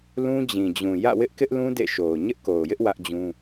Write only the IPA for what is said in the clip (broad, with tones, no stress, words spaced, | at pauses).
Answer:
lũ˦d͡ʑĩ˨d͡ʑũ˨ jä̰˦˨wɪ˦ʔkɪ˦ʔlũ˦ dḛ˦˨ʃo˨ʊ̯ ɲɪ˦ʔko˨ʊ̯jɪ˦ʔ wä˦ʔd͡ʑũ˦